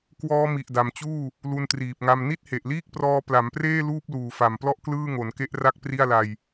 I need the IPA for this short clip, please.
k w ɔː˦˥ m i˨˩ ʔ d a˨˩ m t͡ɕ uː˥˩ | l u˧ n t r iː˨˩ p̚ ŋ a˧ m n i˥˩ t̚ h e˨˩ ʔ l iː˥˩ k̚ p r ɔː˧ p l a˩˦ m p r eː˥˩ l uː˥˩ p̚ l uː˨˩ f a˨˩ m p l ɔ˥˩ ʔ k l ɯː˥˩ ŋ o˩˦ n k e˦˥ ʔ r a˦˥ k̚ p r i˥˩ a̯ l a˧ j

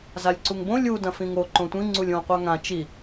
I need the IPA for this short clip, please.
z a lʲ ǀ u ŋ b õ lʲ u d ɐ̃ f ĩ ŋ o ǃ õ tʷ ĩ ŋ͡ǀ u lʲ õ qʷ a ŋ ã t͡ʃ i

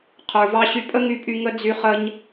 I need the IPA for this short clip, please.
qʰ ə˞˨ v ɑ˧ ɕ y˧ pʼ ə˦ ŋ y˧ pʼ y˧ ŋ ə˧ d͡z y˧ χ ə˧ ɲ

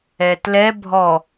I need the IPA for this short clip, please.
ɛ t l ɛ bʱ ɔ

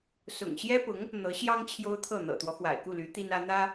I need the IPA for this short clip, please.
s ʊ̰˨˩ ŋ ɕ j ɛ˥ p ʊ˧˥ ŋ | n̪ ɤ˧˥ ɕ j ɑ˥ ŋ t͡ɕʰ j o˥ ʊ̯ t̪ʰ ɤ˥˩ n̪ ɤ̰˨˩ t̪ w ɔ˦ x w a̰˨˩ ɪ̯ k u˥˩ l y˧˥ t̪ i˥ n ä˥ n̪ ä˥

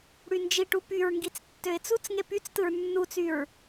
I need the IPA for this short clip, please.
ɽ y n d͡ʒ i ʈ u p y ɹ ŋ ɡ i t͡s tː ø ɪ̯ t͡s u t͡s ŋ e p y t͡s t ɯ ɹ nː u t͡s y ɹ

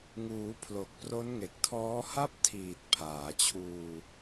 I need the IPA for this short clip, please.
ŋ uː˩˦ pʰ l o˨˩ k̚ p r o˦˥ n ŋ e˨˩ k̚ tʰ ɔː˦˥ h a˥˩ p̚ tʰ iː˨˩ t̚ pʰ aː˩˦ t͡ɕʰ uː˧

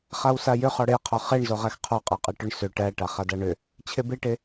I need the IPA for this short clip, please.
χ a w s a j ʏ χ ɔ ɽ e qʰ ɔ χ e ɳ z o ʁ æ x qʰ ɔ qʼ a qʼ e ʈ ʏ ɳ s ʏ ʈ æ ʈ a χ a d a ɳ ʏ | t͡ɕʰ e b e ʈ e

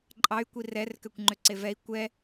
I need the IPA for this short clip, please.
ǃʼ ɑ y̯ kʷ i r ɛ r k ø kʷ ŋ͡ǃ ø ǀ e v ɛ i̯ kʷ ɛ

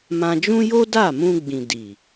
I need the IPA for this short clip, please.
m ã˧ d͡ʒ ũ˦ j o˦ d a˦˨ m ũ˧ ɡ͡b ĩ˨ d i˨

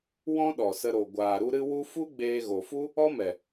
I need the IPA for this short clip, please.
w ɔ̃˦ ɗ ɔ˨ s ə˧ ɾ o˨ ɡʷ aː˨ ɾ u˧ ɾ ɨ˦ w u˦ f u˦ ɡ͡b eː˧ ɣ o˨ f u˦ | ɔ˦ m ɛ˨

